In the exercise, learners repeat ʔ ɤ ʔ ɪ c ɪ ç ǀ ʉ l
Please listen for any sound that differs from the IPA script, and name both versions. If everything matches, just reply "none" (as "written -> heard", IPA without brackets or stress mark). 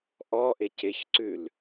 ɤ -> ɔ